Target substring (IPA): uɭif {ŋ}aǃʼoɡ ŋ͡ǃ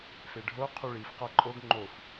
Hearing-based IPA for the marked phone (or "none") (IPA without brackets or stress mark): q